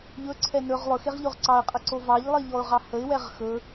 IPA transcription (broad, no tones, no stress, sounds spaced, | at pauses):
ʎ ɵ ǀʰ ɛ n ɵ ʁ lˠ ɵ x e ʁ ʎ o ʁ ǀ ɑ ɪ̯ qʼ ə ǀ o v ɑ ʎ lˠ i ʎ ɔ ʊ̯ ʁ ɑ h ə ɪ̯ w ɛ ʁ x ɵ